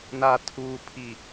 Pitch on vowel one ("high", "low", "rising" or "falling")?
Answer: low